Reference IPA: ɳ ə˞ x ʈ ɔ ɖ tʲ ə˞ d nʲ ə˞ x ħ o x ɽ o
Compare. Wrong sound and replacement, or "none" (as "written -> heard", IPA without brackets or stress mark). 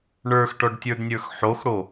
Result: none